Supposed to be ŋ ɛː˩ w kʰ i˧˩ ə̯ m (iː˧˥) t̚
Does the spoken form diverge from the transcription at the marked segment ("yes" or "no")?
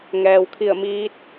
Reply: no